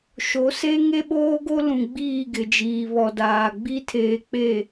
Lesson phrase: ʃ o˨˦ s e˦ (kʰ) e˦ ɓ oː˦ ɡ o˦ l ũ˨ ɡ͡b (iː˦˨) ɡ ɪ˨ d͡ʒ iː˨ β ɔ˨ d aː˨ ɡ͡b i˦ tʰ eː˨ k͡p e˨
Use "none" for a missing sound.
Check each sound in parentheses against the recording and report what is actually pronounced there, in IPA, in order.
ŋ, iː˦˨

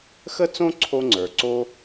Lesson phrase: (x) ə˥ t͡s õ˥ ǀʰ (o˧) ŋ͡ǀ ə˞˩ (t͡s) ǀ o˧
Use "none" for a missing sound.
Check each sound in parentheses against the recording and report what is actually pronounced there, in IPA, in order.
x, o˧, none

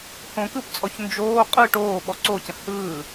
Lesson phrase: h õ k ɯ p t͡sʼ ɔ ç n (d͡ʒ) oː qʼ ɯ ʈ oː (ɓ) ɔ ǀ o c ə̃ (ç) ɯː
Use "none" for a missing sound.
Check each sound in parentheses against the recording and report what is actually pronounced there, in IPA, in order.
d͡ʒ, ɓ, h

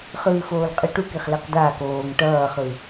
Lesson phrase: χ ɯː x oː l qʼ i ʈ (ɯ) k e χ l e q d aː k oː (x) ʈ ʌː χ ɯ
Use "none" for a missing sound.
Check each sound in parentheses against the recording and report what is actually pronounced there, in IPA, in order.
u, ŋ

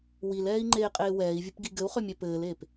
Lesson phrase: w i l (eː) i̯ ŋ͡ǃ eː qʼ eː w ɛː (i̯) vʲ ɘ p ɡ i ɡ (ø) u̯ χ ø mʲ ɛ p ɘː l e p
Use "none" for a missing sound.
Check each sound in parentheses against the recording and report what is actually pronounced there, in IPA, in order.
ɛː, i̯, ɘ

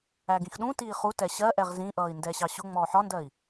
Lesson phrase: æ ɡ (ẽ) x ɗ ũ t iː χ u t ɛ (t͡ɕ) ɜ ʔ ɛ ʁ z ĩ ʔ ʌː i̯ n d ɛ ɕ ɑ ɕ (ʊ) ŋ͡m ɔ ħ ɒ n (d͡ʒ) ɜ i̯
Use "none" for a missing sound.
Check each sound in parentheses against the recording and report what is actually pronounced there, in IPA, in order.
ĩ, ɕ, ʊ, d

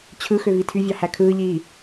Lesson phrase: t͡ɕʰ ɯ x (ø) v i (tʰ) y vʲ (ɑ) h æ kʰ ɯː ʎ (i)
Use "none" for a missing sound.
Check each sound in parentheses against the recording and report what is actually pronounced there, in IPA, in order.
ø, tʰ, ɑ, iː

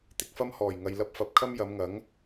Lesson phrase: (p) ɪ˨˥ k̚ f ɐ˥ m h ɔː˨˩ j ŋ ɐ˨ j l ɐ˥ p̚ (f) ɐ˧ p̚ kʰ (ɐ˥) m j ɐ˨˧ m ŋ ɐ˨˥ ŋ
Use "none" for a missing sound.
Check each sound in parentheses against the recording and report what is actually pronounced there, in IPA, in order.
t̪, f, ɐ˥

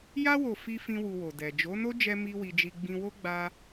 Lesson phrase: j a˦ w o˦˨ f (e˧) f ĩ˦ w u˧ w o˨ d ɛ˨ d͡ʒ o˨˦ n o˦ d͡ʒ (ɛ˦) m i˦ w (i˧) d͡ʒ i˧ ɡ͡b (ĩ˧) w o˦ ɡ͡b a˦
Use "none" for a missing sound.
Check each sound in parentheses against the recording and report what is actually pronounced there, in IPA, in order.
i˧, ɛ˦, i˧, ĩ˧

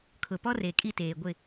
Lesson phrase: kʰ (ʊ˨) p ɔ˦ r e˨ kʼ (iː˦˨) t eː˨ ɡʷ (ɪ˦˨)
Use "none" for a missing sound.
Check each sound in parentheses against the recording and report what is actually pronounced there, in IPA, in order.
ʊ˨, i˦˨, ɪ˦˨

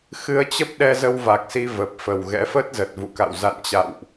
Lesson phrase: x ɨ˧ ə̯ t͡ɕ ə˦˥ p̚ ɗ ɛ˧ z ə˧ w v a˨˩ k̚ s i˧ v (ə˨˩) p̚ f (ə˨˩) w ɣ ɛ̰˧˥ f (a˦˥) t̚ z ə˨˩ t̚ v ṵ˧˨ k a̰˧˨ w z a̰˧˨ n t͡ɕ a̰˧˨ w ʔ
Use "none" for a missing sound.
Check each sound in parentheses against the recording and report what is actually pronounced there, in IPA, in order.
ə˨˩, ə˨˩, ə˦˥

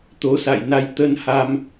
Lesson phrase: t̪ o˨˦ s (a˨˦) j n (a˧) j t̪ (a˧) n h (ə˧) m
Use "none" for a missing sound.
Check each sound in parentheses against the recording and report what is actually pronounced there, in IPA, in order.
a̰˧˨, a˧, ə˧, a˧

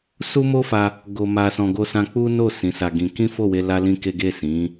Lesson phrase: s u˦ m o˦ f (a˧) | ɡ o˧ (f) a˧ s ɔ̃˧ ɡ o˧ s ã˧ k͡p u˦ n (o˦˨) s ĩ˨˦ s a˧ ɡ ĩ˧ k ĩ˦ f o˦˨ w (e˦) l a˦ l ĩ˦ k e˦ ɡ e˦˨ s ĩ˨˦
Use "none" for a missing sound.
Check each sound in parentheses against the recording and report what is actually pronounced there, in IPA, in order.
a˧, m, o˦˨, e˧

